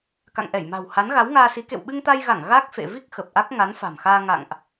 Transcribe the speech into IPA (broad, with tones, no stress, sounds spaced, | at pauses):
k a̰˧˨ ŋ ʔ ɛ˧˩ j m a̤˨˩ w h a˨˦ n ɣ a˨˦ w ŋ aː˧ s i˨˦ k ḛ˧˨ w ɓ ɨ˧ ŋ t̪ a˧ j ɣ a˧˩ ŋ ɣ a˦˥ k̚ f ḛ˧˨ v i˦˥ k̚ x ə˨˩ p̚ ʔ a˦˥ k̚ ŋ a˨˦ n f a̤˨˩ m x aː˧ ŋ a̰˧˨ ŋ ʔ